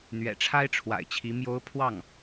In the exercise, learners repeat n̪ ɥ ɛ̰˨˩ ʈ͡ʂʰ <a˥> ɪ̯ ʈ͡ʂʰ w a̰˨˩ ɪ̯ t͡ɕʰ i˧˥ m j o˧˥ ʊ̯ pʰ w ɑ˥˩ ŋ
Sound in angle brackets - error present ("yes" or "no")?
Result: no